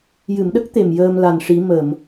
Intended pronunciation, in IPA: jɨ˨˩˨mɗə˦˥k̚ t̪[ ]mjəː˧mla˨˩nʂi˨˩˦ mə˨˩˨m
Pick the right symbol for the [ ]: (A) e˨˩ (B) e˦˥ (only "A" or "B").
A